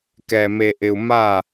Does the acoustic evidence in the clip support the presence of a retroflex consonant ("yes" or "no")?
no